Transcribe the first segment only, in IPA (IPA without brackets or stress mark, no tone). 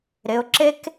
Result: ɾ